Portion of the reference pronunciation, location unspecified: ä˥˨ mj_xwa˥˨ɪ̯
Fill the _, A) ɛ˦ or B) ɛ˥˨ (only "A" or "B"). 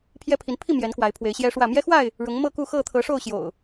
A